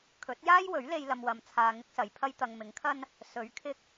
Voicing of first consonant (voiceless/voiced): voiceless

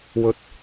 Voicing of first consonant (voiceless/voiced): voiced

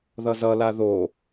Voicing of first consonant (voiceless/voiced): voiced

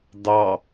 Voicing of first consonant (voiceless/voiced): voiced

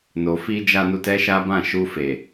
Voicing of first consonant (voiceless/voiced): voiced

